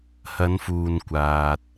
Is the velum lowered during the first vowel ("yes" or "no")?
no